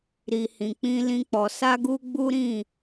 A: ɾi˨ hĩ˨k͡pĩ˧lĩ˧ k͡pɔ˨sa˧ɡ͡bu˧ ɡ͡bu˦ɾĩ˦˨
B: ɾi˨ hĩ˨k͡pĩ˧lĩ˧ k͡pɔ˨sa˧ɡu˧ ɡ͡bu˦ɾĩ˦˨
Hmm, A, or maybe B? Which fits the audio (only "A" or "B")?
B